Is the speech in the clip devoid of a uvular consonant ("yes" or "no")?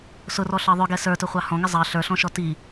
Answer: no